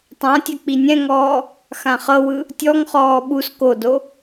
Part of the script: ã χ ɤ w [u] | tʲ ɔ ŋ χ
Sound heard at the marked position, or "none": ɯ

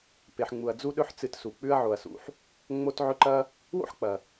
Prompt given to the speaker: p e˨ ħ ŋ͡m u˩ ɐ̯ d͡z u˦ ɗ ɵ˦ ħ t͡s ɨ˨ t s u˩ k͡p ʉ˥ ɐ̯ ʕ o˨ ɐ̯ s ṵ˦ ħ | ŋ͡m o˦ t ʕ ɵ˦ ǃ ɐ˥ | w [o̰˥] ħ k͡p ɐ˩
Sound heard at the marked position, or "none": o̰˥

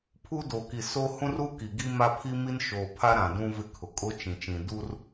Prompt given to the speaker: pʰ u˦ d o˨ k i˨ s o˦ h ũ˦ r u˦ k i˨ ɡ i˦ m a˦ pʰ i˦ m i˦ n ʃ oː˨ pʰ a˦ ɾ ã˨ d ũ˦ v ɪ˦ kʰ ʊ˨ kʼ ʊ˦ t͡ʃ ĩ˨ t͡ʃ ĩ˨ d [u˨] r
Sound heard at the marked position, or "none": u˦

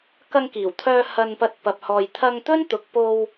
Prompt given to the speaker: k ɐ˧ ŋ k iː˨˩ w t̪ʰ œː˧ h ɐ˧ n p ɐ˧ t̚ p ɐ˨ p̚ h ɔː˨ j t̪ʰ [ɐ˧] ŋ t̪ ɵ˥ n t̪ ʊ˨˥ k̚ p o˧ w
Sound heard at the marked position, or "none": ɐ˧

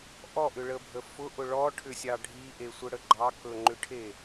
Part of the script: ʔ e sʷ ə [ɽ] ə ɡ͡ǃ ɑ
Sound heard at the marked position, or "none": ɽ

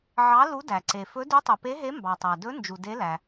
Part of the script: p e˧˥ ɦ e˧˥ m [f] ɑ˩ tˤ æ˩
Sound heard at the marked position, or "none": b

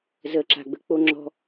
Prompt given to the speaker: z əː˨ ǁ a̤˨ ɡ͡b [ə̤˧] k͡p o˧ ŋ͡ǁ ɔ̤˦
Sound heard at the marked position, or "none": ə̤˧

